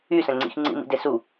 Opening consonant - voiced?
no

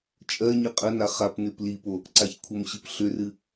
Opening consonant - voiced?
no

